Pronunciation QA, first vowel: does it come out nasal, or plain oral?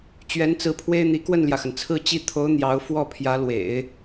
oral